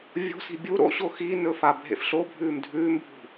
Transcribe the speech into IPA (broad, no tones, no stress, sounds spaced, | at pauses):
vʲ o̤ s i̤ bʲ u ɾ o̰ ɕ o x i n ɵ f a bʱ ḛ f ɬ o bʱ ʉː m dʱ ʉː m bʱ ṳ